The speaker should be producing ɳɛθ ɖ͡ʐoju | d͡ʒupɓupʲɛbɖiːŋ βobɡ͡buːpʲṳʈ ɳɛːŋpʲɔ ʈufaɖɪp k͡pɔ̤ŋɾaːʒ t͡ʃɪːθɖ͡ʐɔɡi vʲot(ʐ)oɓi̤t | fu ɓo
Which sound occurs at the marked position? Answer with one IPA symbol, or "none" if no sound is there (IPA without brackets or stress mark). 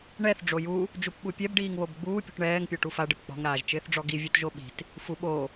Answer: ʒ